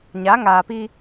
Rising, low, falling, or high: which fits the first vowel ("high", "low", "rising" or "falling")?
rising